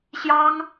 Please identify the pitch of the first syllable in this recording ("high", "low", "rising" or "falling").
high